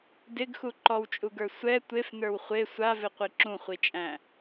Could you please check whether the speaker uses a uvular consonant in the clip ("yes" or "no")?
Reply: yes